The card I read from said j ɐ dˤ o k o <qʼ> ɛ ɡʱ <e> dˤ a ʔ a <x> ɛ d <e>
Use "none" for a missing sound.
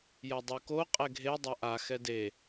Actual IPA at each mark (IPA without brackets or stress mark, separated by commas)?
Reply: qʼ, e, x, e